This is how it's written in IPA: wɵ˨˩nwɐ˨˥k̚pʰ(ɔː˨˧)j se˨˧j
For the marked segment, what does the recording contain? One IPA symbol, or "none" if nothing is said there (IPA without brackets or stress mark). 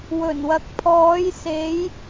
ɔː˨˧